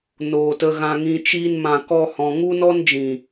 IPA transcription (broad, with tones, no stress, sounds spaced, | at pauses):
n oː˨ t ə˧ ɣ ã˧ ŋ ĩ˧ t͡ʃ iː˦ n m ã˧ k ɔ˦ h ɔ̃˧ ŋ u˦ n ɔ˦ n d͡ʒ ĩ˨